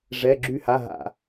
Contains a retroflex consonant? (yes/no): yes